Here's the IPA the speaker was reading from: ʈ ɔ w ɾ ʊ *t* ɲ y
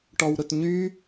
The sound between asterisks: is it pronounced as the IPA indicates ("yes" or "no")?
yes